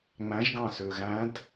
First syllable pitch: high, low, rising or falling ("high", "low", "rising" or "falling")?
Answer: rising